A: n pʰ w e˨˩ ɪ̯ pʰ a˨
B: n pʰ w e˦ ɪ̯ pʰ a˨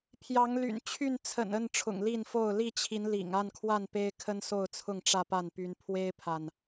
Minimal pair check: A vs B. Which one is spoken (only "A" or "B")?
B